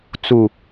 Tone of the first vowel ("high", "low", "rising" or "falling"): low